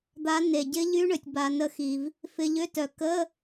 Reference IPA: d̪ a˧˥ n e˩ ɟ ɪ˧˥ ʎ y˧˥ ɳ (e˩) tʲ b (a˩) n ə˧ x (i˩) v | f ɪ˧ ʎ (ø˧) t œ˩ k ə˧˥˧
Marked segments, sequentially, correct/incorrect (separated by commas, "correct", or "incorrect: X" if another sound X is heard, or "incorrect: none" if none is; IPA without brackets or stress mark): incorrect: ø˩, correct, correct, incorrect: ø˧˥˧